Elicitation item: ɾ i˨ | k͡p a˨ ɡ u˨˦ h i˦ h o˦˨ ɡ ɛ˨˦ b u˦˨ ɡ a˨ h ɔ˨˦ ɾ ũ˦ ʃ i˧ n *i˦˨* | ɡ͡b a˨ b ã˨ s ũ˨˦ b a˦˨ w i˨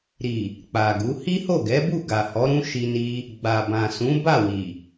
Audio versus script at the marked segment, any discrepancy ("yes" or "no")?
yes